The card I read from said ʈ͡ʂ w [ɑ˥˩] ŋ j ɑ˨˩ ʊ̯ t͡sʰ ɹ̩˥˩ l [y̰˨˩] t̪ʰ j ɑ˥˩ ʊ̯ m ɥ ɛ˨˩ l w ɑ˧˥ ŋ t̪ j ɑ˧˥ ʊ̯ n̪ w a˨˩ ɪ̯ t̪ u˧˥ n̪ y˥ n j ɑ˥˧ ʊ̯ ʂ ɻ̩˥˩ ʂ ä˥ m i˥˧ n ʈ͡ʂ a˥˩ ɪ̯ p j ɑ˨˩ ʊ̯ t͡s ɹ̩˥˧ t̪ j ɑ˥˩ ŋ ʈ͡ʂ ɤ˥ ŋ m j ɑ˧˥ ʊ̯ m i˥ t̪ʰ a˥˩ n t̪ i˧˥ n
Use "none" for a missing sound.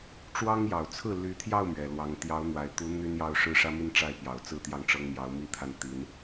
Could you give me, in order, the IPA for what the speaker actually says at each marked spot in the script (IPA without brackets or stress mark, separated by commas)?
ɑ˥, y˧˥